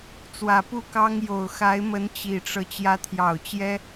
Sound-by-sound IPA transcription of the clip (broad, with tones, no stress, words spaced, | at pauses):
t͡swä˨˩pu˥˩kɑ˥ŋ jo˨˩ʊ̯xa˧˥ɪ̯mə˧˥n t͡ɕi˨˩ʈ͡ʂɤ˦ t͡ɕjä˧˥t̪ʰjɑ˨˩ʊ̯ t͡ɕjɛ˥